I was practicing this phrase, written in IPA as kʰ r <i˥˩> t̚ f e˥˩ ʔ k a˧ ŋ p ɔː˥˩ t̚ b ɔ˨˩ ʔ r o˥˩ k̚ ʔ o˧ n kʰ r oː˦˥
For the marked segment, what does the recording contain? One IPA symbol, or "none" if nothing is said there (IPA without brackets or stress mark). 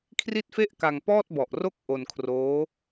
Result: i˥˩